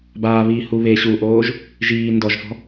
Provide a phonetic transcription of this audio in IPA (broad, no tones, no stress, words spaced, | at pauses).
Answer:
baːβiːhu βe ɕuʔoːʒ | ʒiː ndɔʒfɔ̤